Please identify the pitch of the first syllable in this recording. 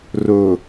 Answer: low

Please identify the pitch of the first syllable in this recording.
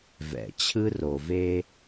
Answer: low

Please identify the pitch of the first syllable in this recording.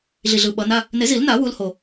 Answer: low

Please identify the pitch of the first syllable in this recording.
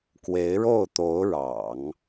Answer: rising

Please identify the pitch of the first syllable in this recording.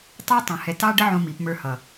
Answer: high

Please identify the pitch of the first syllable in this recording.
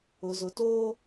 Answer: low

